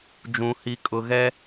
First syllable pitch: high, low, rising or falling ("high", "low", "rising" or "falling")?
low